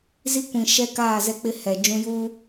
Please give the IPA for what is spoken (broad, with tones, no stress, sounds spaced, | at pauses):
z i˦ kʷ ĩ˨ ʃ ɛ˦ k aː˦˨ z ɛ˦ k͡p ɪ˦ h ɛ˨ d͡ʒ ũ˦ j uː˦